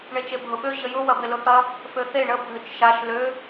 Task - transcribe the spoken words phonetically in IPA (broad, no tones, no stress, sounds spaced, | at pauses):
ɳ e t͡ʃ e bʱ ʊ ɓ ø ʑ ə j ʊ w ɐ b ɪ l ʊ θ ɐ | f ø θ e ɳ ə bʱ ʏ t͡ʃ ʃ a ʃ l ø